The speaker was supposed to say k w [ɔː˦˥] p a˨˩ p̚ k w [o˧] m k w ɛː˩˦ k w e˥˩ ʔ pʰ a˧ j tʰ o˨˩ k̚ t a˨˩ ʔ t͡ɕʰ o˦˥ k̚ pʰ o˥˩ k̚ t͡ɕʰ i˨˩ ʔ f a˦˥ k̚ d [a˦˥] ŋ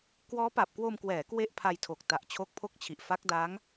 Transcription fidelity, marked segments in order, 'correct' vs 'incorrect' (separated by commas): correct, correct, correct